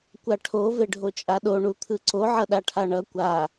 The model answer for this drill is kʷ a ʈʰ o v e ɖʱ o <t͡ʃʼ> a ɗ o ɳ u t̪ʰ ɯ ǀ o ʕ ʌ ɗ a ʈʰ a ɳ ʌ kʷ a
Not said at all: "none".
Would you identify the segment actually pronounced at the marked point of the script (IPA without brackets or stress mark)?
t͡ʃʼ